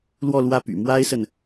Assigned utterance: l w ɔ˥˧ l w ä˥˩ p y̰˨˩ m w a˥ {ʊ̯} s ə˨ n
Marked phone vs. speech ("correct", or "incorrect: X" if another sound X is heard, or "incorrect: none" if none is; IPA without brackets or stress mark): incorrect: ɪ̯